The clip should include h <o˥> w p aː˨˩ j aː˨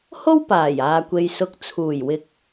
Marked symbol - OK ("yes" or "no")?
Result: yes